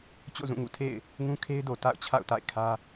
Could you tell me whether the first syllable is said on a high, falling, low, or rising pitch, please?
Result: falling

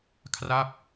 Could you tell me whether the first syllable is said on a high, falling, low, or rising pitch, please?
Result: falling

